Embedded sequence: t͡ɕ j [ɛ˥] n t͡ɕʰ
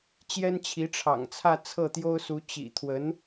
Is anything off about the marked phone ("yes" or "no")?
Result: no